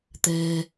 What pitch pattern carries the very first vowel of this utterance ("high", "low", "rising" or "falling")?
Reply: low